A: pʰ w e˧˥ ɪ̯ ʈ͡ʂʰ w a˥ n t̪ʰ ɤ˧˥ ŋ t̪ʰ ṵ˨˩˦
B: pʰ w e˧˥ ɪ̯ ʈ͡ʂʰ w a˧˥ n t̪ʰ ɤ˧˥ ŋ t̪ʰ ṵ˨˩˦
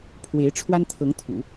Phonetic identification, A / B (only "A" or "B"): A